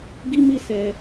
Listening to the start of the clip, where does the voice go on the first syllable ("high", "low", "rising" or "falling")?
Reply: high